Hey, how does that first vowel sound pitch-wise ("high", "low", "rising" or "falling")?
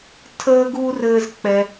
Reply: high